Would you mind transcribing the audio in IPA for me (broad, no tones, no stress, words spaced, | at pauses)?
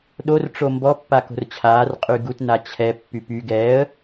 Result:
ɗor ʈ͡ʂombɔ pːako̤rt͡ɕʰaːr qʼyɡut nat͡ɕʰɛ pːypy ɡɛːə̯